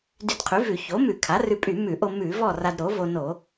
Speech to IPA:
d y˧ d qʰ y˩˥ v ʉ˧˩˧ ç o˩˥ m ʉ˧˩˧ kʰ a˩˥ r ʉ˧ pʼ y˧˩˧ m ʉ˧˩˧ ʔ o˧ m ʉ˧˩˧ v ɔ˥˨ r a˧ d ɾ o˩˥ v o˧ n o˧˩˧

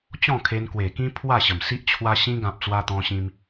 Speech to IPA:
t͡ɕ ɔ̃˥˧ kʰ e˧ n k w e˨˩ k ĩ˦ pʰ w a˥˧ ɕ ə˨˩ m s i˦ ʔ t͡ɕʰ w a˧ ɕ ĩ˧ ɡ ã˨ p̚ t͡s w a˧ t̪ ɔ̃˧ ɕ ĩ˧ m

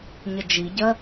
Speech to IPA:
ɲ ə d͡ʒ i ɟ ɜ

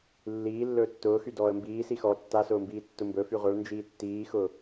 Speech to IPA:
lː iː lː ɵː tː ʊː x y d ɔː ə̯ m b iː s i x ɔ tː a s ʊː m b iː tː ʊ m b ɵ f y ʁʷ ʌ ɭ n d͡ʒ iː tː iː x ʊː

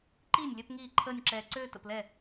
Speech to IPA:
ǃ iː˥˩ nʲ lʲ œ˥˧ p ŋ iː˥˩ ǃʰ əː˥˧ nʲ ǁ ɛː˧ ǀ øː˥˧ t ə̰˥˩ p l ɛ˥˩

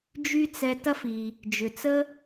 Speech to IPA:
d͡ʒ y˥ t͡s ɛ˧ t ɐ˥ f i˩ | d͡ʒ ʏ˩ t͡s ə˥

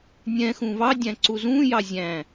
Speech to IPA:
nʲ ɛ̃ x ũ v ɑ dʲ æ̃ ǀ u z ũ j ɑ zʲ æ̃

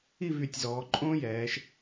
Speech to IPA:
i˥˧ v y˧˩ tʲ z ɔː˩˧ ǃʼ õː˥ j ɛː˩˧ ʃ

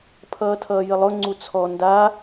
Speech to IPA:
pʰ ʌː tʰ ʌː j ə lˠ ʊ ŋ͡ǀ u t͡sʰ ɔ n d a

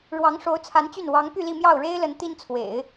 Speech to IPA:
ɻ w ɑ˧˥ ŋ ʂ o˧˥ ʊ̯ t͡sʰ a˧˥ n t͡ɕ y˥˩ n w ɑ˧˥ ŋ p y˥˧ l i˥˧ m j ɑ˥˩ ʊ̯ ɻ e˥ ɪ̯ l ə˧˥ n t̪ i˥ n t͡sʰ w ḛ˨˩˦ ɪ̯

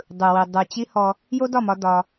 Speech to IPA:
dˤ ɯ˨ w i˨ dˤ ɯ˨ t͡ɕ i˦ h ɔ˧ | j o˦ d ɒ˦˨ m ɒ˧ d ɒ˧

